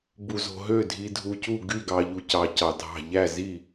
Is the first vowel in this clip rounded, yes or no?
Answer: yes